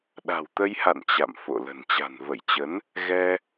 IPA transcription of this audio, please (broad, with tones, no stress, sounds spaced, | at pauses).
ɗ a̤˨˩ w t̪ ə˧ j h a̰˧˨ n t͡ɕ a̰˧˨ m f o̰˧˨ l ə̤˨˩ n t͡ɕ a̤˨˩ n v ə˧˩ j t͡ɕ ə˨˦ n | ɣ ɛ˧